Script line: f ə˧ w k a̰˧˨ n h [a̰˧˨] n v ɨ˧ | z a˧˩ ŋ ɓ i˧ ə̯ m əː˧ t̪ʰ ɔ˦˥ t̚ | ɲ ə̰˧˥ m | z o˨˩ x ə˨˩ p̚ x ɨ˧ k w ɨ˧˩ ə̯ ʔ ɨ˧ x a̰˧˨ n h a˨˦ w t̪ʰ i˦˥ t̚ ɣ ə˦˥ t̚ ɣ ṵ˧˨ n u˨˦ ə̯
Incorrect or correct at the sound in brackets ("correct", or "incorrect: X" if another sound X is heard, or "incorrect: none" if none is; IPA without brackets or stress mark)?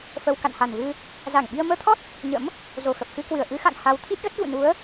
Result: incorrect: a˨˩